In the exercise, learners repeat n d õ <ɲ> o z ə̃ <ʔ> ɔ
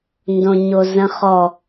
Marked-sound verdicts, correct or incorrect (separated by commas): correct, incorrect